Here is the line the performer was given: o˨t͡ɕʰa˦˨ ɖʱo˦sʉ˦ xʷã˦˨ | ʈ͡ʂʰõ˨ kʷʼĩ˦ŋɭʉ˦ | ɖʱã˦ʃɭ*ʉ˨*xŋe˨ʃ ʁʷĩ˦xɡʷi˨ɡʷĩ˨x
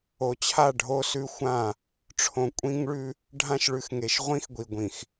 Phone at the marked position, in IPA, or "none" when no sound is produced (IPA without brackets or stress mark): ʉ˨